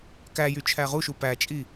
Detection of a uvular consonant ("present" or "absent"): present